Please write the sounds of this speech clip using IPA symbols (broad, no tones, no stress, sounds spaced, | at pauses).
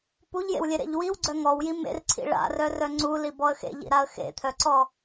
p u ʎ j ḛ w lʲ e ɾ ḛ ʎ w i w ɡ͡ǀ œ ŋ ɔ w j i m ḛ r ǀʰ ḭ ɭ a̰ r œ r œ ŋ͡ǀ u l i b ɔ ə̯ x ḛ ʎ ḭ ɾ a ə̯ x ḛ t̪ʰ œ ǀ ɔ